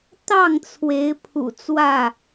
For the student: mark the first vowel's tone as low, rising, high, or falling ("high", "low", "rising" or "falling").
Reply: falling